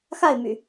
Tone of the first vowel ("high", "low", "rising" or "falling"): falling